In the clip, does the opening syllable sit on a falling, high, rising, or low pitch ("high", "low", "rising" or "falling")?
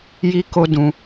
high